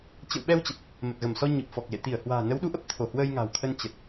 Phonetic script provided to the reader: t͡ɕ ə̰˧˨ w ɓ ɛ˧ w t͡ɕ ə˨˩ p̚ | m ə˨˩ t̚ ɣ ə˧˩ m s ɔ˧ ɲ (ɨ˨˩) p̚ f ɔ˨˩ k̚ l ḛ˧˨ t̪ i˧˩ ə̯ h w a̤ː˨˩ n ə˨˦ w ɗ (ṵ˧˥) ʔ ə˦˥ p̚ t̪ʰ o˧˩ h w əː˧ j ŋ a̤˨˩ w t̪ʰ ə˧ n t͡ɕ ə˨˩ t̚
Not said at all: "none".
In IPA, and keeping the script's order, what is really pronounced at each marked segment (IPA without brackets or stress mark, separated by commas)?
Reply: ɨ˨˩, u˨˦